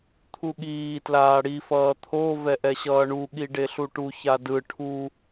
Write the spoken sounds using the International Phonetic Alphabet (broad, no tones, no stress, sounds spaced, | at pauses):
t̪ʰ u ɠ iː t l aː ɽ i f ʌː t̪ʰ o v ɛ ʔ ɛ ɕ ʌː ɳ u ɠ i ɖ e ɬ u ʈ u ç a d ɯ ʈʰ u